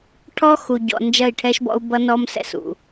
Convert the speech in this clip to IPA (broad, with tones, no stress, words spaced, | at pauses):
ʈʰɔ˦xu˨ɟɔ̰˨ nd͡ʒɐ˦˨i̯ʈʰɛ˦ʃbɔ̰˦u̯ bʌ˦nɔ˦msɛ̰˦s ṵ˨